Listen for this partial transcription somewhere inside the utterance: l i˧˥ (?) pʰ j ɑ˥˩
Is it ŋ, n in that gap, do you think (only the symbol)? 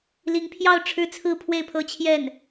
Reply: ŋ